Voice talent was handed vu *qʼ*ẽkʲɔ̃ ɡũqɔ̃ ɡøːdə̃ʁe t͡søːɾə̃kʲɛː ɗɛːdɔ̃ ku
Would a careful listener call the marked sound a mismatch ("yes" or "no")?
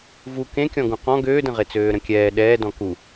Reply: yes